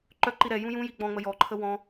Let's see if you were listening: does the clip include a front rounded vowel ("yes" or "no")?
yes